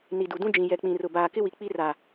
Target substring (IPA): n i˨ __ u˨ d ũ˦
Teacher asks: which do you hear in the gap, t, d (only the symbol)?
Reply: d